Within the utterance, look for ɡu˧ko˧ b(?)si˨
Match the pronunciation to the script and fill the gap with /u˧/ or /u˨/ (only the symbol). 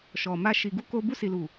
u˧